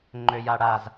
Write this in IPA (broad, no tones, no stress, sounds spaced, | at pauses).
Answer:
ŋ͡ǃ ø j a ɽ a z